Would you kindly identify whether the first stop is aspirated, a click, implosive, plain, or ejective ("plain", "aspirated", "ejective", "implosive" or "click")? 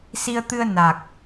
plain